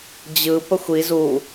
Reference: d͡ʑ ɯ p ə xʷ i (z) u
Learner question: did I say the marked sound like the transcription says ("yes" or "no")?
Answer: yes